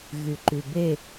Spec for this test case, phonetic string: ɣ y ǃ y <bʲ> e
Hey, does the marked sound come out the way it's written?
no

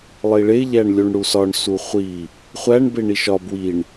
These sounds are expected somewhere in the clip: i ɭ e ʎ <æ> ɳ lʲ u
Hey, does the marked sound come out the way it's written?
yes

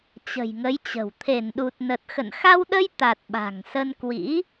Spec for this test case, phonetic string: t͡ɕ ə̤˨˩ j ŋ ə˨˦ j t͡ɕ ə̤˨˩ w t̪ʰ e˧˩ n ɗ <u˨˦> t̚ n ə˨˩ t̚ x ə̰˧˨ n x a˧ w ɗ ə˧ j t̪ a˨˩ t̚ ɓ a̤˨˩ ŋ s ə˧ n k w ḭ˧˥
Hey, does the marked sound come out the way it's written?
no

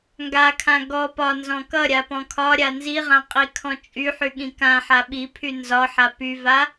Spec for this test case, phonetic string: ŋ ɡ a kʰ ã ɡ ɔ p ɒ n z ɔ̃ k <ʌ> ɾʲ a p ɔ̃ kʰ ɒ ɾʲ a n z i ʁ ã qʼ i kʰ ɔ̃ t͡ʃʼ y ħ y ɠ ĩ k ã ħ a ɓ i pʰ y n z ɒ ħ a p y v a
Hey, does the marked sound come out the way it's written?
yes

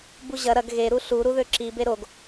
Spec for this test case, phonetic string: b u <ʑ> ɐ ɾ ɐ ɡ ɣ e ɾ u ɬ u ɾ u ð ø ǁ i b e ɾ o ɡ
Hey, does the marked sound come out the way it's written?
yes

